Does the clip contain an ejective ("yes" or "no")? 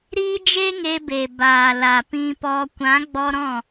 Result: no